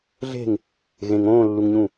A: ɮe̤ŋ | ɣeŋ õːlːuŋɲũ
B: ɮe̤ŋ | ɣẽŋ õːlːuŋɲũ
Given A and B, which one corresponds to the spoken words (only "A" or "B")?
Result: B